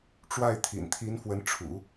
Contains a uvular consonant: no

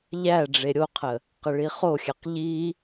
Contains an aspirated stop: yes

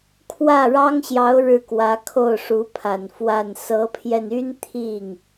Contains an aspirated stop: yes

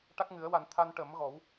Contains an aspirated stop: yes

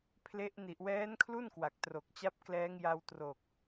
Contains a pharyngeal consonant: no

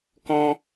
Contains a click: no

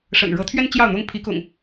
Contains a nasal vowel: no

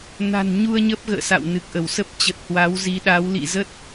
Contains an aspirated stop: no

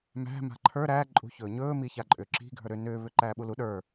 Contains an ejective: yes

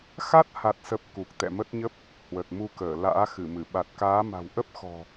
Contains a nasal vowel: no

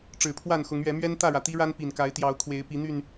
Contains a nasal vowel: no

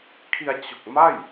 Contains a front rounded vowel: no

